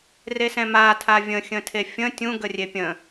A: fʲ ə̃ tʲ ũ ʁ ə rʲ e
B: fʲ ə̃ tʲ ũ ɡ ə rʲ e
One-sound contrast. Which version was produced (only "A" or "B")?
B